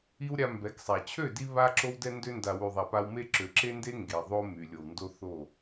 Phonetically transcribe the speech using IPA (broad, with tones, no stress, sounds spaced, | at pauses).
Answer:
i˦ w ɾʲ a˧ m b ɛ˨˦ k sˤ a˨ t͡ɕʰ ø˦˨ d i˧ β a˧ ǁ o˧ w d ɛ˧ n d ø˧ n d a˨ w y˨ ðˤ a˨ p a˧ w m e˦ ǁ ø˨ ǁ e˦ n d e˦ ŋ ɡ e˨ ðˤ o˦ m y˨ lʲ o˨ w n d o˦ θ o˦˨